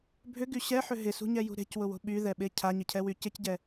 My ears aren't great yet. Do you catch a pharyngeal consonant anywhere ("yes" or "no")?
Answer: yes